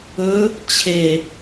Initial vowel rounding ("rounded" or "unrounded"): rounded